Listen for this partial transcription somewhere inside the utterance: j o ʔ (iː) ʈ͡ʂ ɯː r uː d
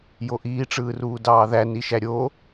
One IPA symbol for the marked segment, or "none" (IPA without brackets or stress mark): iː